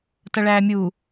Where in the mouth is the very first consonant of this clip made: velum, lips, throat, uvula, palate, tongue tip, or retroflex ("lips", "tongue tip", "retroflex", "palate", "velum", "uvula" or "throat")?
tongue tip